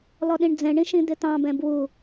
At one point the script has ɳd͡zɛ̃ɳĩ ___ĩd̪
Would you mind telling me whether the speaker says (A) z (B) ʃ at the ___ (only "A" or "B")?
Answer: B